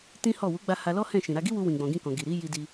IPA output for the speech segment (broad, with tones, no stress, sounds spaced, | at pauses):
t ĩ˦ h ɔ˦˨ w u˨˦ ɡ͡b a˧ h a˧ l ɔ˦ h ɛ̃˦˨ ʃ ĩ˨ ɾ a˧ ɡ i˦ w u˧ w ĩ˨ ɡ͡b ɔ̃˨ ɡ ĩ˧ k ɔ̃˨ ɡ i˨ ɾ i˨˦ j i˧ d i˧